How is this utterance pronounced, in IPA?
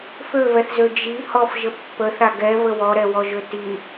f ø v ɛ θ z ø d͡ʒ i h ɔ f ʒ ə pː ə θ a ɡ ɛ v ə w ɔ ɾ ɛ w ɔ ʒ ø t i

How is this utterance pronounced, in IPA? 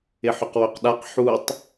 ɪ ħ ʏ q w œ q ɗ a q ħ u tˤ

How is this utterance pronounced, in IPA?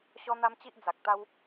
ɕ ɔ˦ n̪ a˦ m t͡ɕ i˦ ʔ d͡z a˨ k̚ t̪ a˧ w

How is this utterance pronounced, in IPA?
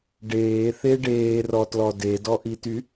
ɖ eː θ e ɖ eː r ɔ t l ɔ d e d ɔ ʔ i t y

